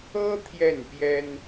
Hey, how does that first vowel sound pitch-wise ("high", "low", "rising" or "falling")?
high